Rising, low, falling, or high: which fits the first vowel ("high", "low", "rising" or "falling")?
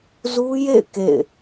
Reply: high